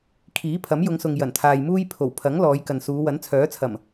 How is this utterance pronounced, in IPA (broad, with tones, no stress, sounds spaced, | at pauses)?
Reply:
kʰ iː˨˥ pʰ ɐ˨˥ m j ʊ˨˧ ŋ s ʊ˨ ŋ j ɐ˨˩ n t̪ʰ aː˨ j m uː˥ j pʰ o˨˩ w pʰ ɐ˨˥ ŋ l ɔː˨˧ j k ɐ˨ n s uː˨˧ w ɐ˨˥ n t͡sʰ œː˨˥ t͡sʰ ɐ˨˩ m